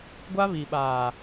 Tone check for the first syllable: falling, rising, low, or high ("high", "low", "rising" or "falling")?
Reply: high